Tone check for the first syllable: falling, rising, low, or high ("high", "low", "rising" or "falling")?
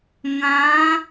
rising